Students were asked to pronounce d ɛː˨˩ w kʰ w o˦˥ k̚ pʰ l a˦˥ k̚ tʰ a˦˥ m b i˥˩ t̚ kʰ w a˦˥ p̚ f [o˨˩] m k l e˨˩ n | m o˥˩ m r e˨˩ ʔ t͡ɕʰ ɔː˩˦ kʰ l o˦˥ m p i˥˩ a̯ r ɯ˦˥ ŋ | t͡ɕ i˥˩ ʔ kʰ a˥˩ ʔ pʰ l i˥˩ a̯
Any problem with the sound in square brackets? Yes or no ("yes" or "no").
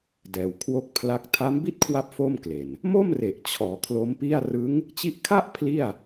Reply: yes